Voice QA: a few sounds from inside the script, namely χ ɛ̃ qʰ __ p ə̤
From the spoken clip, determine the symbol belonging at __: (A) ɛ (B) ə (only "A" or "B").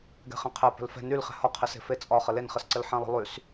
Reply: A